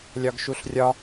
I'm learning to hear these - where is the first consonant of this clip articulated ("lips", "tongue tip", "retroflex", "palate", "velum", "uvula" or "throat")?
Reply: tongue tip